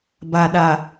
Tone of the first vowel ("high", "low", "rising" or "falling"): low